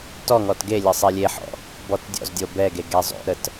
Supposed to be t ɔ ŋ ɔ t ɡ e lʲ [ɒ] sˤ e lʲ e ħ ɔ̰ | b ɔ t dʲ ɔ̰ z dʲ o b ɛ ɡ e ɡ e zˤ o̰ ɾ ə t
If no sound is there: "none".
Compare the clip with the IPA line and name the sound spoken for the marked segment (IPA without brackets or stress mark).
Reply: ʌ